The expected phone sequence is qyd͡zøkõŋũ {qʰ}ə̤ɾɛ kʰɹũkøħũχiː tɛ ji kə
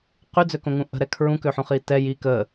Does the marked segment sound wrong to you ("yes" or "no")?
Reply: yes